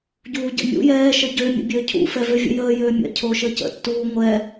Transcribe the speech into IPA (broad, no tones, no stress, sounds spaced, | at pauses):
ɟ uː ɟ ə̰ mʲ ṵ j ɛː ʃ ə ɟ ø mʲ ə̰ bʲ øː cʰ ṵ f ɛ v ø vʲ ə̰ j əː j øː mʲ ɛ̰ cʰ oː ʃ əː c ə̰ tː uː ŋʷ ɛ